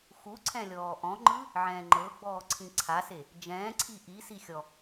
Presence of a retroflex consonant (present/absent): absent